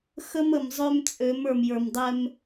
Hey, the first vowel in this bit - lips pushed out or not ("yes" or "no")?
no